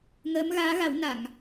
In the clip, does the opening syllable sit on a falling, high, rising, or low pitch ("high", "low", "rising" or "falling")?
rising